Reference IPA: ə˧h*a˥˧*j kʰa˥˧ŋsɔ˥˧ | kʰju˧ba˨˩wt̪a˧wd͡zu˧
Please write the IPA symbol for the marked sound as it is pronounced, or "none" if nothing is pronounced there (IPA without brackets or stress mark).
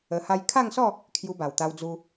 a˦